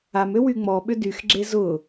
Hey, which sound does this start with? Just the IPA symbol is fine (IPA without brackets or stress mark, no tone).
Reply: a